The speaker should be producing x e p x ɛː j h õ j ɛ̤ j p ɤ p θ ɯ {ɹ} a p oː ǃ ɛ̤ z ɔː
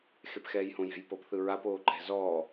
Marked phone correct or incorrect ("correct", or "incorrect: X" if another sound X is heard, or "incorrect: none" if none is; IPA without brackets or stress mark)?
correct